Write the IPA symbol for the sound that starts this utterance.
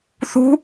θ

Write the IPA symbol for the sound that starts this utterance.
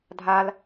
dʱ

